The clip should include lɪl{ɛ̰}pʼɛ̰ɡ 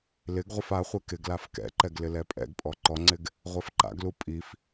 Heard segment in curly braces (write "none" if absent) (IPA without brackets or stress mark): ɛ